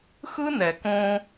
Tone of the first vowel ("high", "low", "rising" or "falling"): high